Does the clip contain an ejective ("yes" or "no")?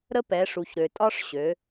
yes